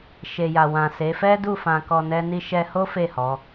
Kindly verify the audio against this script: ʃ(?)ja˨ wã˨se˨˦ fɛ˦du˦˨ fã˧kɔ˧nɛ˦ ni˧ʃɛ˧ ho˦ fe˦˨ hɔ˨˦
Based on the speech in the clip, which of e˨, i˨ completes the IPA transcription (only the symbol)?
e˨